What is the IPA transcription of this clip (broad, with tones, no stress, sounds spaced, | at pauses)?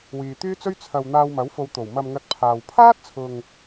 w iː˨ t̪ yː˥ t͡s ɵ˥ ɥ t͡sʰ ɐ˨ w n̪ aː˧ w m ɐ˨˥ w f o˨˧ w t̪ o˨˩ w m ɐ˨ m ŋ ɐ˨ t̚ pʰ aː˨ w pʰ aː˥ t̚ t͡sʰ ʊ˨ ŋ